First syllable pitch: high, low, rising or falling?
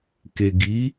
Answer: low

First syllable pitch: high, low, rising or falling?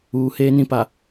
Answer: low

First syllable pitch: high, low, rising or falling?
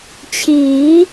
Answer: rising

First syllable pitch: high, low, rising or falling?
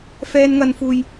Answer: high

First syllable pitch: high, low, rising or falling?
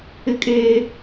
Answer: high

